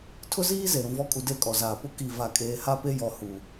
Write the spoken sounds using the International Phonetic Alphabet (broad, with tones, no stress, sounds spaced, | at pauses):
tʰ ʊ˦ z iː˦ z e˨ ɾ ũ˨ v ɔ˦ kʼ u˨ d e˦˨ kʼ ɔ˨ z aː˨ p ʊ˦ k i˦˨ v a˦˨ kʼ eː˦ h a˦ p e˦ j ɔ˨ h u˨